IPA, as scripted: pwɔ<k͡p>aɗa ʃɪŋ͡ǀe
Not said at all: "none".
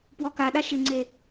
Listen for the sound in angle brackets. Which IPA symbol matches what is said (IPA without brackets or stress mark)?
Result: k